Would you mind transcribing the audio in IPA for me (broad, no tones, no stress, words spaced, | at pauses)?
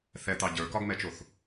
θɛt̪ɑ ɟə˞kɒɡmɛt͡ʃoθ